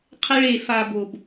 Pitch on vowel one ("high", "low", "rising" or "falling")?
high